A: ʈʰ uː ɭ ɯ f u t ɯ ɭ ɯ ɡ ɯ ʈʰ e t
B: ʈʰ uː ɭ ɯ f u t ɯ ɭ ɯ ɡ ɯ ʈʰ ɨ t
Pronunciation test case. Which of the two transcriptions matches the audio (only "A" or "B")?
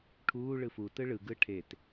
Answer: A